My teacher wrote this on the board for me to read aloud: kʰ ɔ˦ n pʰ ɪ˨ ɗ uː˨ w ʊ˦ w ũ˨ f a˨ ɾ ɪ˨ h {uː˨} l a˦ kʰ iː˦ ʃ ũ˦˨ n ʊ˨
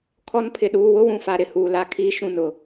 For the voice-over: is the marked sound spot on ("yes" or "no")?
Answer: yes